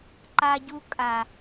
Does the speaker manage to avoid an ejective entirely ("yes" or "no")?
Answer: no